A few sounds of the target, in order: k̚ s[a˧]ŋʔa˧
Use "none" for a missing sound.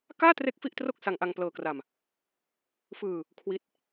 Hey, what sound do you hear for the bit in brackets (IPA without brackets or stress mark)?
a˧